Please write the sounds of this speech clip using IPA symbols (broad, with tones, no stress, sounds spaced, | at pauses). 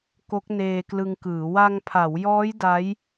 k o˦˥ k̚ n eː˧ k l ɯ˧ ŋ k ɯː˩˦ w a˧ ŋ pʰ a˩˦ w j ɔː˦˥ j d a˦˥ j